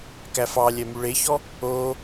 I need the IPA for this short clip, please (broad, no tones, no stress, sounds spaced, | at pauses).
k æ f ɑ lʲ ɛ m y ɭ e ç ɔ | o